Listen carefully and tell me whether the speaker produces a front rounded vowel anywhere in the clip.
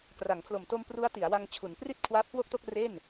no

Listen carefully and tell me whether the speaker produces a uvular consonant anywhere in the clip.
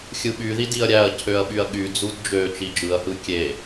no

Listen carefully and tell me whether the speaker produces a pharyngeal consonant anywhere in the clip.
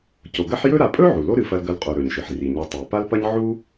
yes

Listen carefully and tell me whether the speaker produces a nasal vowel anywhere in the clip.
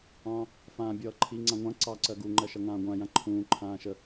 yes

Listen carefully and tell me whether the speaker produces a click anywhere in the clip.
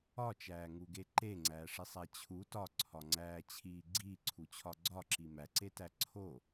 yes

